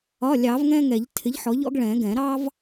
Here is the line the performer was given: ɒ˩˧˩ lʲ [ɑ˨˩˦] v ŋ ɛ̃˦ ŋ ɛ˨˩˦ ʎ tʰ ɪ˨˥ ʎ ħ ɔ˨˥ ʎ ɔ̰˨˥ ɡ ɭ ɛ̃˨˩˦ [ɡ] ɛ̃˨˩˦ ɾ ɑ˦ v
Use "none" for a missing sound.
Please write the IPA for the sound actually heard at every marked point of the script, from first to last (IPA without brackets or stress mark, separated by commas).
ɑ˨˩˦, ɡ